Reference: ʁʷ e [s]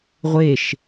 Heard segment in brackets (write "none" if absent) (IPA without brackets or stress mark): ʃ